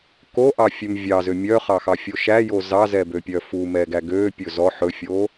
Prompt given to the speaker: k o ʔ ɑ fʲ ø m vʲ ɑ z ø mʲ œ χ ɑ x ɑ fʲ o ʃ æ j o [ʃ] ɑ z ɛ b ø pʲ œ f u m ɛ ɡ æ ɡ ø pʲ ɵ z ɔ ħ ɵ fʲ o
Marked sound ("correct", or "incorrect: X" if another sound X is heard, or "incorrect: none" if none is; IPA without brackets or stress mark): incorrect: z